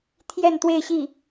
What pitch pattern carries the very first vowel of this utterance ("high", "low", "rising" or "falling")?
falling